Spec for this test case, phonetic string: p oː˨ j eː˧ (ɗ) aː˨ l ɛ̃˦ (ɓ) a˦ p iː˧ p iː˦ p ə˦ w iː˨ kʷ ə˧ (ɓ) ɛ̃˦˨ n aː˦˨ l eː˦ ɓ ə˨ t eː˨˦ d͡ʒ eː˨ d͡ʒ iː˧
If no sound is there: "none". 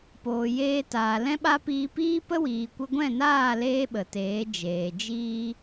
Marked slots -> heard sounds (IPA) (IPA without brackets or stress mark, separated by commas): t, ɓ, ɡʷ